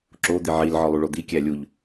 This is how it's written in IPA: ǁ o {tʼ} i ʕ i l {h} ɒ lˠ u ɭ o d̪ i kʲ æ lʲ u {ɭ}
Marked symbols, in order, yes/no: no, no, no

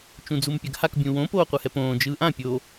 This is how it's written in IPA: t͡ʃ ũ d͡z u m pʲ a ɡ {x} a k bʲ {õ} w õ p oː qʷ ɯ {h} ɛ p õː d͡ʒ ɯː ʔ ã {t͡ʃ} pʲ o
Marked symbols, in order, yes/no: no, no, yes, no

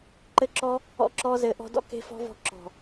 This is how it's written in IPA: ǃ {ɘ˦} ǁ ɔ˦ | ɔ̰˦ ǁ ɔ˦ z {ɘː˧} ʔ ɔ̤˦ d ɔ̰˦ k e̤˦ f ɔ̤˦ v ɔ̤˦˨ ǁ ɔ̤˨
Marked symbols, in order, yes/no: yes, yes

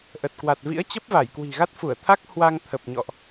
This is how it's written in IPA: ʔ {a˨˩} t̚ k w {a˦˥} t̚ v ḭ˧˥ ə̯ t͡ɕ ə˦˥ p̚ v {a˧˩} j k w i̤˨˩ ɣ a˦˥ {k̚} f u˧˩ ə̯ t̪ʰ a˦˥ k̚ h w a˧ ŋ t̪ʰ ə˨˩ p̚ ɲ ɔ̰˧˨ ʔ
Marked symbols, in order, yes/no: no, no, yes, no

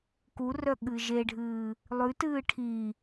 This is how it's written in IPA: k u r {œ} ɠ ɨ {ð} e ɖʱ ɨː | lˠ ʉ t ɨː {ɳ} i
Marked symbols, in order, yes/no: yes, no, no

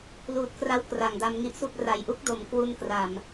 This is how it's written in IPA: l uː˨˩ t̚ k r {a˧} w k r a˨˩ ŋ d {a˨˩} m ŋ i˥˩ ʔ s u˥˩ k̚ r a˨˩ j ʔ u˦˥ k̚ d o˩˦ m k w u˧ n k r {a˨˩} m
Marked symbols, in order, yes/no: no, no, yes

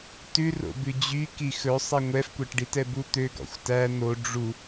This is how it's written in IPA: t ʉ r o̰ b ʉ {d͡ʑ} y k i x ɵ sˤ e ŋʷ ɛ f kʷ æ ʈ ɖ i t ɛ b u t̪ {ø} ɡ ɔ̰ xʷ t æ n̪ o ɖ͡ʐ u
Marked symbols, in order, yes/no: yes, yes

